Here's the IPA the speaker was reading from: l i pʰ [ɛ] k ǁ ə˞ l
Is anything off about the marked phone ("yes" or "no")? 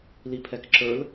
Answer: no